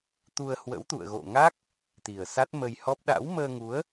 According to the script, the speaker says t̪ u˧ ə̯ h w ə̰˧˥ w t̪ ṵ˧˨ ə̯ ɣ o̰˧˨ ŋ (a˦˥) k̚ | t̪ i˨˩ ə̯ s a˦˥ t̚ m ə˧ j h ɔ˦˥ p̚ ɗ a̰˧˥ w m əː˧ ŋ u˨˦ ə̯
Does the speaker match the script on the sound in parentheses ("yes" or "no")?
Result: yes